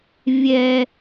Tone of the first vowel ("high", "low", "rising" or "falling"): high